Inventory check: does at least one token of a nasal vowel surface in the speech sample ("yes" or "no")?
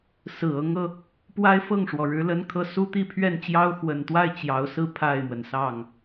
no